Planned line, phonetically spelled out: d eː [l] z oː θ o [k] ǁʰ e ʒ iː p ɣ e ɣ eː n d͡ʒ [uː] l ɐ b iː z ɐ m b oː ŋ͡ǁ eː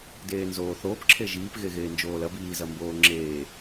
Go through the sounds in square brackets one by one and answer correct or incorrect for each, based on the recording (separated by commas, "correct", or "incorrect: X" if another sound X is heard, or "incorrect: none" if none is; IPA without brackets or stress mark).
incorrect: n, incorrect: p, incorrect: oː